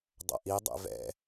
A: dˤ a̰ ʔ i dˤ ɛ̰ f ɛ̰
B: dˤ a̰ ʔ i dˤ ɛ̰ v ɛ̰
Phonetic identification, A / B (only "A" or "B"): B